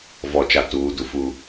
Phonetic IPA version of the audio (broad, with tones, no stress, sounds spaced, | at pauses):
v ɔ˨ t͡ʃ a˨ t uː˨˦ d u˨ f u˦